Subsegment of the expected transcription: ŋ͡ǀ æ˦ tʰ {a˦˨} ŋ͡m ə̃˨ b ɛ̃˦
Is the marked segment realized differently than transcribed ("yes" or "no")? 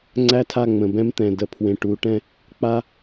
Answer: no